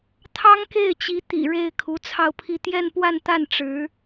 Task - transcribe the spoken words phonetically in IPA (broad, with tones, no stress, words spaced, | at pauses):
t̪ʰɑ˥ŋke˥˩ɪ̯t͡ɕi˧˥ t̪ḭ˨˩ ɻe˥˩ɪ̯ kʰu˧˥t͡sʰɑ˥˧ʊ̯pʰi˥˧ t̪jɛ˥˧npwa˥˧nt̪a˥˩n ʈ͡ʂɻ̩˧˥